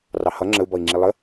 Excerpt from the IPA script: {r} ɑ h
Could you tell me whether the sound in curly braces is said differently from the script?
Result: no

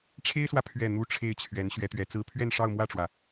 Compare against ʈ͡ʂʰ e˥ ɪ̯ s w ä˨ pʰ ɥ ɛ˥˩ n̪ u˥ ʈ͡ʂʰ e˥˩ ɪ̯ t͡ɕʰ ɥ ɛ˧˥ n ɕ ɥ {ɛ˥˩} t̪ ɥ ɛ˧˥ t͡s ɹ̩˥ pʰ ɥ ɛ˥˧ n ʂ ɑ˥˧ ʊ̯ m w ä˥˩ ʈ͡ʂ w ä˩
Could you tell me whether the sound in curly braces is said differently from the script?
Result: yes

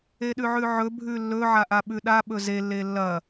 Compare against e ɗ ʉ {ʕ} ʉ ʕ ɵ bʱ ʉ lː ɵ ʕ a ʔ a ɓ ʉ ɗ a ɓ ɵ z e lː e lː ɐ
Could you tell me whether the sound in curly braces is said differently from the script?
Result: no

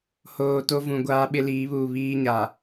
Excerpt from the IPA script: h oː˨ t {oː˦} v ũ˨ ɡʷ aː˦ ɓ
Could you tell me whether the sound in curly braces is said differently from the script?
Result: yes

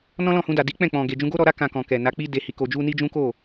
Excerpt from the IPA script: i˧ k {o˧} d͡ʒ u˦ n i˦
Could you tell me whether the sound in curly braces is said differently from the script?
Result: no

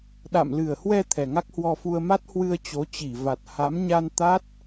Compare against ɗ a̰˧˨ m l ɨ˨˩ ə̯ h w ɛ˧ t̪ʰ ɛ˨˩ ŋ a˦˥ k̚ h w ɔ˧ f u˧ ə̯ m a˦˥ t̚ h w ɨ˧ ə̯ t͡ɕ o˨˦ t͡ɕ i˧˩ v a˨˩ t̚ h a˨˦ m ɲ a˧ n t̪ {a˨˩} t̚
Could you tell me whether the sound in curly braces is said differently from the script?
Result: yes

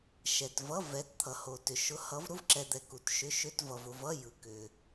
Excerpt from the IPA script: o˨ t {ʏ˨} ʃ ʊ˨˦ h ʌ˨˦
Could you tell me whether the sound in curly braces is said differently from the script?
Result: no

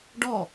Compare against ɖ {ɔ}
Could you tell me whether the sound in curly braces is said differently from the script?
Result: no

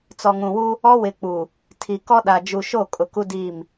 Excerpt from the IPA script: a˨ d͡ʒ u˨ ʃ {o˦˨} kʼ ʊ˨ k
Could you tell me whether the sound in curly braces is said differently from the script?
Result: no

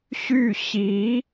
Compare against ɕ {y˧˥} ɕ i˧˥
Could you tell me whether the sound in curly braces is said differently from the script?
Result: yes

